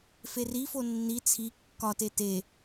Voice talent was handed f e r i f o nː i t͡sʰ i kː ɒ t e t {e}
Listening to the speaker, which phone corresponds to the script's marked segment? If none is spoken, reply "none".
e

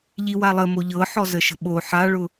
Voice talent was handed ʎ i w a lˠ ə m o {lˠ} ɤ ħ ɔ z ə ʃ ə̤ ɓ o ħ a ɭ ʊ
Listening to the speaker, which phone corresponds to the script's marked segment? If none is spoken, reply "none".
ʎ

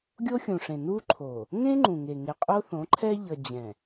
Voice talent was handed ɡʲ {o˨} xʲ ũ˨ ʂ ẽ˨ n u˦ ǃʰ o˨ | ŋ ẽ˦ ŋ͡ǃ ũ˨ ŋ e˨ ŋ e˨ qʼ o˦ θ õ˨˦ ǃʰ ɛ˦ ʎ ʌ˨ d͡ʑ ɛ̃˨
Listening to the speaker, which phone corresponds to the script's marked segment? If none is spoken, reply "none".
o˦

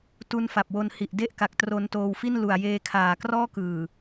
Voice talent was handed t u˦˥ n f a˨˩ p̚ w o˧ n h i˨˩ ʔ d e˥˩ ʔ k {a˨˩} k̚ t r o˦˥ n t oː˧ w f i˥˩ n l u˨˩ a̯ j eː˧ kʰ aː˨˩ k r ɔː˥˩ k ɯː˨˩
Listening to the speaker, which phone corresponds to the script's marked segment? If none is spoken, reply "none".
a˨˩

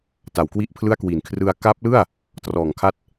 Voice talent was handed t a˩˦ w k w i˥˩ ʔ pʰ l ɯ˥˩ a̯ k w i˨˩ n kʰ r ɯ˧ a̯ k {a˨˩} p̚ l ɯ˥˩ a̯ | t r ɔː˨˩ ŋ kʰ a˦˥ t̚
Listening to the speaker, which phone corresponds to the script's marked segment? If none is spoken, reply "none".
a˦˥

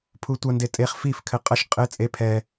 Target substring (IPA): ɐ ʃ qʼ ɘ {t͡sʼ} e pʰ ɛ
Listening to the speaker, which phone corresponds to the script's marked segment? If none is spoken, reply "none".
t͡sʼ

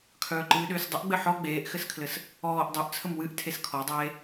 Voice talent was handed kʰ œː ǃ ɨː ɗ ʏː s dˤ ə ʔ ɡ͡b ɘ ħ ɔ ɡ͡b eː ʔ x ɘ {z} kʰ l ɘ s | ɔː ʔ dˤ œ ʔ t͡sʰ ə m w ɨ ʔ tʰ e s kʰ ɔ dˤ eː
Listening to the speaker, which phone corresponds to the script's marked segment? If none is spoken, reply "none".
s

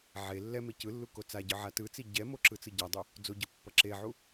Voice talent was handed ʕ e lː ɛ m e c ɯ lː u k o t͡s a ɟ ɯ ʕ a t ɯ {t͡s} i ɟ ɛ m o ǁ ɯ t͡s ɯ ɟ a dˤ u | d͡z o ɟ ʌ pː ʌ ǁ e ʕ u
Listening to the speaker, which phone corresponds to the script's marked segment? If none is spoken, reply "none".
t͡s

